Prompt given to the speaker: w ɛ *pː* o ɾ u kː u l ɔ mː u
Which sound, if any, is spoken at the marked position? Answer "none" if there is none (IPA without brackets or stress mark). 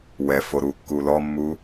f